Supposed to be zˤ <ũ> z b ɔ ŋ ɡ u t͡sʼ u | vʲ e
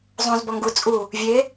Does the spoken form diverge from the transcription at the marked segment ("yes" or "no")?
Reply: no